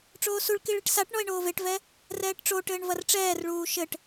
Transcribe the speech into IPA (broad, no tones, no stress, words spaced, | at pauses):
ʈ͡ʂoːsuɭ kiɭiʈsaʈ ɳɔe̯ɳoːveʈvɛ | rɛːʈʈ͡ʂoʈɘːɳ vɐrʈ͡ʂɛːrɭuː ʃɘʈ